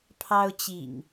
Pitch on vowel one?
high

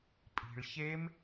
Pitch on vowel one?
low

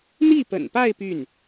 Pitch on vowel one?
falling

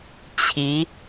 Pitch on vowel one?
rising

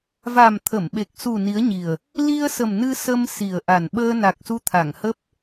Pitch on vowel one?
low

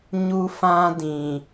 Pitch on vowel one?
high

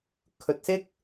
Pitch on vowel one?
low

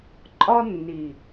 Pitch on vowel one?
high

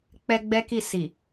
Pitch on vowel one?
high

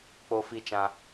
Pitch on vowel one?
high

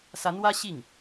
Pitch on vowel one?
rising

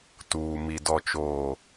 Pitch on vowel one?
low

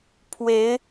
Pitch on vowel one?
rising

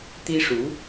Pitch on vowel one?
high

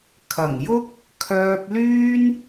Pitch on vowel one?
low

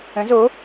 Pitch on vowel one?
rising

